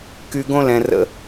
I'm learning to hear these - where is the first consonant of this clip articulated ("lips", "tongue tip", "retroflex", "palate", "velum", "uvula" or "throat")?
velum